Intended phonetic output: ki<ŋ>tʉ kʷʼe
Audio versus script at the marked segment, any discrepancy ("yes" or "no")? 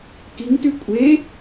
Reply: no